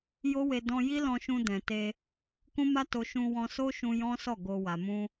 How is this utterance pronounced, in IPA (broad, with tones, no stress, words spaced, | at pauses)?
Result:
jo˦we˧ dɔ̃˧ ji˦lɔ̃˧ʃũ˧ dɛ̃˨te˧ | kũ˦ma˦to˧ ʃũ˧ wɔ̃˧so˦ʃũ˧ jɔ̃˦sɔ˦˨ ɡo˧ wa˨mũ˧